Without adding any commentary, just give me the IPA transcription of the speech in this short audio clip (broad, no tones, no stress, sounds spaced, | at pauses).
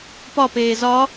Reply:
p ɒ p eː z ɒ